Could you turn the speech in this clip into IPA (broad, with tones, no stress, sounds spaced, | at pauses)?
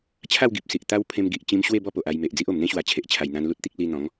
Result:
t͡ɕʰ a˥˧ w ɡ i˨ p̚ s i˨ ʔ t̪ a˧ w pʰ ẽ˧ m ɡ i˨ ʔ t͡ɕ ĩ˧ m ɕ w e˥˧ b ɔ˥˧ p o˨ ʔ a˧ j m e˨ ʔ d͡z i˦ ʔ o˨˩ m n̪ ẽ˦ ɕ w a˨˩ t͡ɕʰ e˨ ʔ t͡ɕʰ a˨˩ j n̪ ã˧ n l u˦ t̚ t̪ i˦ k̚ l i˧ n̪ ɔ̃˨˦ ŋ